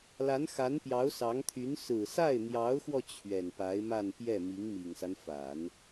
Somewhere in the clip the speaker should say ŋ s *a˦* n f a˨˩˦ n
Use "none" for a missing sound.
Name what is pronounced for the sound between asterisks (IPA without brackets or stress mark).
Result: a˦